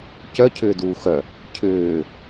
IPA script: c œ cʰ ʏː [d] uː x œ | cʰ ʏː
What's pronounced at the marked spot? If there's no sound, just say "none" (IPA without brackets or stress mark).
d